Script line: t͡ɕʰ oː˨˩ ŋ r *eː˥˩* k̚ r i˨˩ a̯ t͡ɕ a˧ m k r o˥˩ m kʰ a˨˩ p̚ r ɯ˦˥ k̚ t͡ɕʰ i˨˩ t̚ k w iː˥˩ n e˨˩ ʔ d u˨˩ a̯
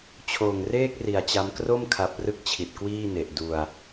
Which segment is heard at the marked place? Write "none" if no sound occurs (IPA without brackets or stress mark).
eː˥˩